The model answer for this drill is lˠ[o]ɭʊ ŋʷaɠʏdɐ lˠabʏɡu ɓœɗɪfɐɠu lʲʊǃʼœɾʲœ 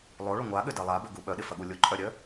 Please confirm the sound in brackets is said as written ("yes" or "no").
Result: yes